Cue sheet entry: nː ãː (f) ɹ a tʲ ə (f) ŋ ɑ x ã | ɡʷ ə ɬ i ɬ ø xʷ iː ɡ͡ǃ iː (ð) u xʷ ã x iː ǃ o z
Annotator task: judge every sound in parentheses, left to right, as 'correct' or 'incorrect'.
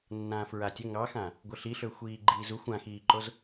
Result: correct, incorrect, incorrect

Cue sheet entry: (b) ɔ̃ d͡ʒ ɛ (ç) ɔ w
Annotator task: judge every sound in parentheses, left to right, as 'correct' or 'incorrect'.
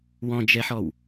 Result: incorrect, incorrect

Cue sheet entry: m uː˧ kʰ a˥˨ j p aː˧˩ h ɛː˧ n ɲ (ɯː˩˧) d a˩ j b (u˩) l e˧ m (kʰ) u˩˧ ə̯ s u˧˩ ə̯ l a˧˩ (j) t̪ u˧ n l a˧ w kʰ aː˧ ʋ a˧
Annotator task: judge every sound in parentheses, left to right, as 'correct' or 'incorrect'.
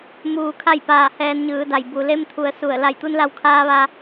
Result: correct, correct, incorrect, correct

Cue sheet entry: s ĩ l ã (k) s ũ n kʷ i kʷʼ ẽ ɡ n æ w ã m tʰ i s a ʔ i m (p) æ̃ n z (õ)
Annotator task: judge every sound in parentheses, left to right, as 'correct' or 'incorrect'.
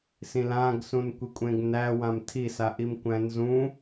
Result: incorrect, incorrect, incorrect

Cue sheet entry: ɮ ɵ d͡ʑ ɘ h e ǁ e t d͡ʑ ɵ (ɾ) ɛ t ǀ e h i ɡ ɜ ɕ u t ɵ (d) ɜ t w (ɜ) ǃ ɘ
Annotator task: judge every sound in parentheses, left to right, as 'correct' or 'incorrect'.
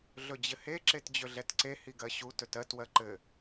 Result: incorrect, incorrect, correct

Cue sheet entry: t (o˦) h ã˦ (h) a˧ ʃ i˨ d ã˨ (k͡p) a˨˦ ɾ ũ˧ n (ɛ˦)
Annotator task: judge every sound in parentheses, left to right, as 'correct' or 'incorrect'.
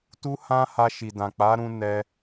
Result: incorrect, correct, correct, correct

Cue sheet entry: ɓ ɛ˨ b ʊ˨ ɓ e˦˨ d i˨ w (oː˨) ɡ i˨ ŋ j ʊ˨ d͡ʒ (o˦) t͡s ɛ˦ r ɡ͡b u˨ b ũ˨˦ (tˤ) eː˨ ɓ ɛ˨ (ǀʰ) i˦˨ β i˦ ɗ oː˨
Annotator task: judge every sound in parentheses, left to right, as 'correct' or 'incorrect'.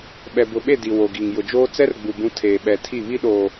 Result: incorrect, incorrect, incorrect, incorrect

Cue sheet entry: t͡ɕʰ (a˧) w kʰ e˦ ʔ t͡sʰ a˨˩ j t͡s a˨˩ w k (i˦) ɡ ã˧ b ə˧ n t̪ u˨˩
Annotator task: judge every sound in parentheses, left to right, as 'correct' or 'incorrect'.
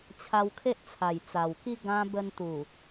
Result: correct, correct

